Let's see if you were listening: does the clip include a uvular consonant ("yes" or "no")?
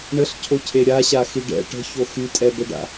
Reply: no